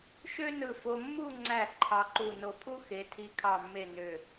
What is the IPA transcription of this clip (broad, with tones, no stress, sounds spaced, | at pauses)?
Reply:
ʃ ø˥ n ɯ˧˩ f o˧ mː u˥˧ ŋ͡ǀ æ˧˩ ǃʰ ɑ˧ ǃ u˧˩ n o˧ pʰ u˥ x e˩˧ tʰ i˧ kʰ ɑ˧˩ mː e˧˩ n ø˧˩